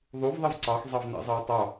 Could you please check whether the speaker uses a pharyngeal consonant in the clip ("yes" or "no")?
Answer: no